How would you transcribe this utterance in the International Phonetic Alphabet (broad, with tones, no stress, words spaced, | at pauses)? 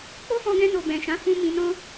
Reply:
k͡po˦fɔ̃˧ɡɛ̃˧no˨ bɛ̃˨ʃã˨˦ fũ˧ mĩ˧nɔ̃˦